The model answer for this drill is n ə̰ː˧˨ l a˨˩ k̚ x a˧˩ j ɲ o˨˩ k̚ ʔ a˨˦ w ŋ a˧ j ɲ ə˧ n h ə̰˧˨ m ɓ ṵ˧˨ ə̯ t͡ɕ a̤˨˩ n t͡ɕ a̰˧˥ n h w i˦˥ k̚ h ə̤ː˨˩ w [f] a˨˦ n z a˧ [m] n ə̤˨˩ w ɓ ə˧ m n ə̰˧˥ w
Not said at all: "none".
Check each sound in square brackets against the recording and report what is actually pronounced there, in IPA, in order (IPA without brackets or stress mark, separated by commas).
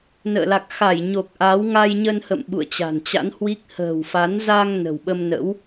f, ŋ